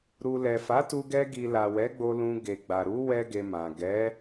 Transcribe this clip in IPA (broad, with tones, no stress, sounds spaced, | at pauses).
ɾ u˨ l ɛ˨ f a˨˦ t u˧ ɡ ɛ˧ ɡ i˨ l a˨ w ɛ˨˦ ɡ͡b o˧ l ũ˧ ɡ e˨ ɡ͡b a˨ ɾ u˨˦ w ɛ˦ ɡ e˧ m ã˨ ɡ ɛ˨˦